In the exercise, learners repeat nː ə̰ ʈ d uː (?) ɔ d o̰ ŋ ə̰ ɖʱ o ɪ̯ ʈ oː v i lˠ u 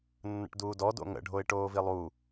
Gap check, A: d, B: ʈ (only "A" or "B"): A